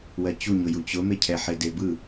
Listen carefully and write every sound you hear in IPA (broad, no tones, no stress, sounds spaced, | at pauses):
w ɜ t͡ɕ u ɲ ʊ j u t͡ɕ ʊ m e cʰ ɛ ħ e d e b ɯ